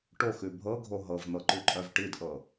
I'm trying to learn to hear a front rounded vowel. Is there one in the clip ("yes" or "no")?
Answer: yes